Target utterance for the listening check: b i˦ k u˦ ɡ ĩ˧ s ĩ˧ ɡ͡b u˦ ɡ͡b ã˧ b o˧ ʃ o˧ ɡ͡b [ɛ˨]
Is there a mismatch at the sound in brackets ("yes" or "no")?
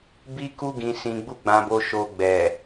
no